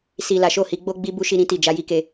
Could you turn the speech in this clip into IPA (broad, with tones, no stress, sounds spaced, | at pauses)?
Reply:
s i˨ l a˨˦ ʃ o˦˨ h i˧ ɡ͡b o˦ ɡ͡b i˦ b u˦ ʃ i˧ ɾ ĩ˧ t i˨ d͡ʒ a˧ j i˦ k e˧